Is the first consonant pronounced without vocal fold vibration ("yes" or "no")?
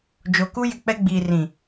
no